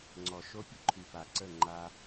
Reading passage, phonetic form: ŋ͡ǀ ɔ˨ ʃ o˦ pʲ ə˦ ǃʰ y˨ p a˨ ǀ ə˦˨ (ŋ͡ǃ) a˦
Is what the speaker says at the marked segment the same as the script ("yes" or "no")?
yes